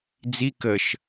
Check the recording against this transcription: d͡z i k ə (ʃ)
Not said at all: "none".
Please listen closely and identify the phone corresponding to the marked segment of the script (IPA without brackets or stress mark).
ʃ